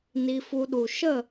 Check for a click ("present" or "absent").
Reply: absent